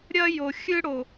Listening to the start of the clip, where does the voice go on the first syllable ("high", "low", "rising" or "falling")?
high